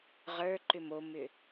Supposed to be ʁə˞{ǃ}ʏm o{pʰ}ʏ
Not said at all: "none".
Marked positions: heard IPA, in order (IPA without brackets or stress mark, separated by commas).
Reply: ǃ, m